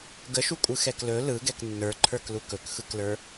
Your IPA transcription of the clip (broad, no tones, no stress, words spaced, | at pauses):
ɡəʃukʷʼɯ xɛklɵ lɯ ɡɛknːə˞ǃʰə˞k lukɵkxɯklə˞